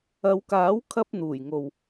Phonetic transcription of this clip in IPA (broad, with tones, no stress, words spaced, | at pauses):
ɐ˨˧wkaː˨˥wkʰɐ˧p̚ n̪uː˨˩jŋo˨w